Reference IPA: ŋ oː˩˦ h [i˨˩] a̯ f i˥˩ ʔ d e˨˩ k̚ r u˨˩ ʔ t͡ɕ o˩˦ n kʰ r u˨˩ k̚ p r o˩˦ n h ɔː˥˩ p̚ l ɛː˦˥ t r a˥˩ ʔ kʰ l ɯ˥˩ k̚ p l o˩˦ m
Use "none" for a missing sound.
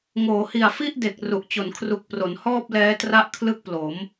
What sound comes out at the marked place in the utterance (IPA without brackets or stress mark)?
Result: i˨˩